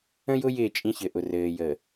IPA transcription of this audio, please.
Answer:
ə̃˦ j ʊ˦ j ɪː˦˨ t͡ʃʼ ĩ˦ ç ɘ˨ ʔ ʊ˨ r ɘː˨ j ə˨

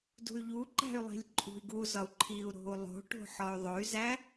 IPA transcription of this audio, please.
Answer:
d ṳ y̯ ʎ u ǃ æ̤ y̯ lˠ i̤ lʲ ǃʼ ṳ i̯ ɡ u z ɒ u̯ ǃʰ i u̯ ɾ o̤ u̯ lˠ o̤ ʈ o̤ ħ ɒ y̯ ðˤ o y̯ z æ

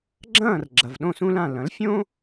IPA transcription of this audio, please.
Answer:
ɡ͡ǁ ɐ̃ː˥˩ r ɡ͡ǁ ɐ˩ v ɗ õ˥˩ s ũ˥ l ã˥˩ l ɐ̃˩˥ l fʲ õ˥

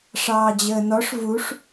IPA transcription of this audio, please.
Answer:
ʂ ɑː d͡ʑ əː n ɔ ʂ v u ʂ

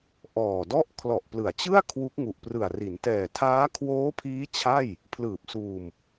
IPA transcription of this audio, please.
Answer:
ʔ ɔː˨˩ d ɔ˥˩ ʔ kʰ l ɔ˨˩ ʔ p l ɯ˩˦ a̯ t͡ɕ ɯ˥˩ a̯ kʰ w u˦˥ k̚ ŋ u˨˩ ʔ p r ɯ˨˩ a̯ r i˩˦ n t ɛː˨˩ tʰ aː˦˥ kʰ w oː˦˥ pʰ iː˦˥ t͡ɕʰ a˥˩ j | pʰ l ɯː˨˩ p̚ s uː˧ m

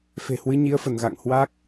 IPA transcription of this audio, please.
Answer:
f e̤˨˩ h w ɨ˨˦ ɲ i˨˦ ə̯ f ə˧˩ n ɣ a̰˧˨ ŋ h w a˦˥ k̚

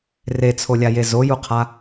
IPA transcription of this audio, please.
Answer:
r e t͡sʰ o lʲ a j e z o j u qʰ a

